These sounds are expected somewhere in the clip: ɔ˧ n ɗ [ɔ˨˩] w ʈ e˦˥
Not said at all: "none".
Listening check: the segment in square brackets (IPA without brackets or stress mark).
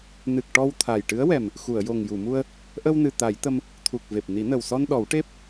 ɔ˨˩˦